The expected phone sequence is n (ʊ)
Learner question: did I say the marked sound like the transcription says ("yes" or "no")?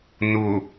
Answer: yes